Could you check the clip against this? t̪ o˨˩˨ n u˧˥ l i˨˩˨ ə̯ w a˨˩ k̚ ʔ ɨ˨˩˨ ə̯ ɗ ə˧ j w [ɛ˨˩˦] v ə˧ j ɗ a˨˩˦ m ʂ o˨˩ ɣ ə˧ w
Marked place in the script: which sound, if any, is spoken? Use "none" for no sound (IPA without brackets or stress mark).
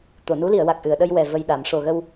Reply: ɛ˨˩